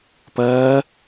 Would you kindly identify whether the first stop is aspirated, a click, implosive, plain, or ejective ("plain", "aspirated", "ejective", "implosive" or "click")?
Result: plain